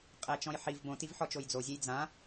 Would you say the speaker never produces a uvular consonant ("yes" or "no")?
no